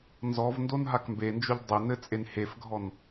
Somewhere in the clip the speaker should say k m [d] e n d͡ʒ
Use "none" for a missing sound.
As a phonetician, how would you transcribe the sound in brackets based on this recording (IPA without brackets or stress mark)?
b